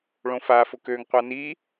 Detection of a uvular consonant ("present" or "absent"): present